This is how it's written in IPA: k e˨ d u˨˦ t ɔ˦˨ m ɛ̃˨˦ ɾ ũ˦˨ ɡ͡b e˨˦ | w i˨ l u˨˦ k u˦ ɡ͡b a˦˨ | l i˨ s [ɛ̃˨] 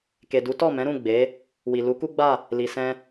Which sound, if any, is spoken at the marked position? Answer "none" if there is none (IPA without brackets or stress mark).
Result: ɛ̃˧